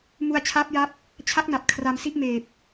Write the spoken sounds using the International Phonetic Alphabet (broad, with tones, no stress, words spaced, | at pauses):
mu˧a̯t͡ɕʰaː˦˥p̚ja˦˥p̚ | t͡ɕʰa˦˥k̚na˨˩p̚ kʰra˧msi˥˩ʔmeː˨˩p̚